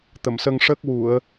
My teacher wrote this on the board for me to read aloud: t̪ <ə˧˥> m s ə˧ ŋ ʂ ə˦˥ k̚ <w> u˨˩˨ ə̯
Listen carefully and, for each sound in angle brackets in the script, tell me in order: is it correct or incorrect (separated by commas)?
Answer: incorrect, correct